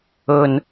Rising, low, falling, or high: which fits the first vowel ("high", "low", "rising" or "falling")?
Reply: low